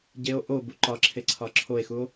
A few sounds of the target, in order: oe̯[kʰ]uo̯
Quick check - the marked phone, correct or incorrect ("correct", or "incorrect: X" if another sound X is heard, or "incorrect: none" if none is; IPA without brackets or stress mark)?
incorrect: x